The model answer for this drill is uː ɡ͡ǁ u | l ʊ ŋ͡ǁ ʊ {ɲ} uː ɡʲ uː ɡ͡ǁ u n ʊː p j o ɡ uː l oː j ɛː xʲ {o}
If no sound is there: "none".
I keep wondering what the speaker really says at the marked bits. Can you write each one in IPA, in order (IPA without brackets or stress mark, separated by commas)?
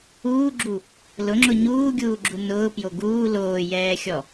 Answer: ɲ, ɔ